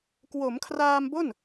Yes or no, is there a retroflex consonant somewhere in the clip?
no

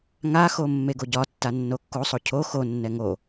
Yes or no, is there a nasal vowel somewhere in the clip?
no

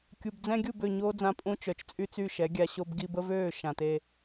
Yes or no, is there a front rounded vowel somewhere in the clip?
yes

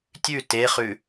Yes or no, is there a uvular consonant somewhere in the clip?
yes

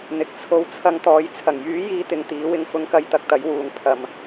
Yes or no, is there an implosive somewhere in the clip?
no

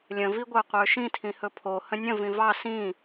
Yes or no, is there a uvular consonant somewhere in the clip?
yes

